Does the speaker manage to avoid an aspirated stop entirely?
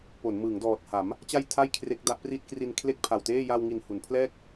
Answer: no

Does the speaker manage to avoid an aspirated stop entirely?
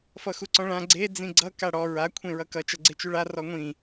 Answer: no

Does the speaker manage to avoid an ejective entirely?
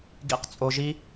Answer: no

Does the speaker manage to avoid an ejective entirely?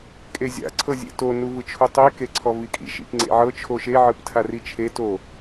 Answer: no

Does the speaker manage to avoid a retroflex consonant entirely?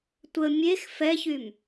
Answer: yes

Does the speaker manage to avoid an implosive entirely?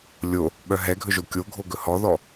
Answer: no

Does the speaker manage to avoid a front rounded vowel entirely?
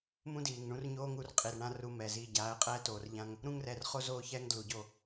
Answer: yes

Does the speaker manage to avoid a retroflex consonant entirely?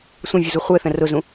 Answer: yes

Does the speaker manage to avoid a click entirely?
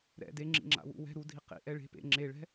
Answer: no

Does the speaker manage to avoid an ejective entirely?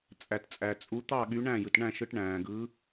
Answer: no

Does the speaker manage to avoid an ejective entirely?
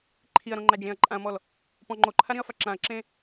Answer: no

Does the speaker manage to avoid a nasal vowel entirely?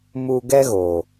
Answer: yes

